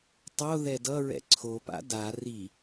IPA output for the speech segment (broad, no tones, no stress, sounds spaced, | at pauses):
tˤ o ð ɛ d ʌ ɹ ɛ̰ ǀʰ o p a̰ d a r i